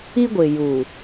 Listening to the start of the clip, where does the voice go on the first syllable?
high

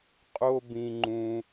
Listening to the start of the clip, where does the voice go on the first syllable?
high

